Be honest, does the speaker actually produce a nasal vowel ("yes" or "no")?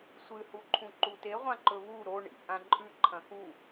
yes